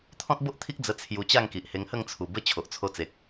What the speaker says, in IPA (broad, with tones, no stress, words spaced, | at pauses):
t̪ʰɔ̃˦t̚bo˦ʔt̪ʰi˦k̚ d͡zə˧ t͡sʰju˧t͡ɕa˥˧ŋki˨ʔ he˧ŋhə˥˧ŋ t͡sʰu˨˩bə˦ t͡ɕʰo˨ʔt͡sʰo˧t͡se˨k̚